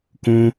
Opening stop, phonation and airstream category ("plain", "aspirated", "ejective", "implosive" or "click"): plain